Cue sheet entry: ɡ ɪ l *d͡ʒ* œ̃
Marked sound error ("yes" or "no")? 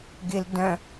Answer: yes